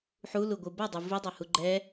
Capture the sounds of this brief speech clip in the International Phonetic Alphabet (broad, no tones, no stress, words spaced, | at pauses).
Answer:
ħuluɡʷɯ bʌdˤɯ vidˤahu ɡ͡ǃɛ